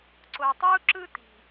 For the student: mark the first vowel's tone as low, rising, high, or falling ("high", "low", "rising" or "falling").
low